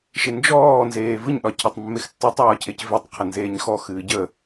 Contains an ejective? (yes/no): no